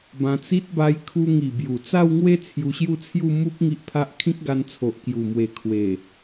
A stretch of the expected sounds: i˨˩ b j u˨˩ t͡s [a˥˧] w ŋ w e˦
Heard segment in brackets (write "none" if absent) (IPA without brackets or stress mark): a˥˧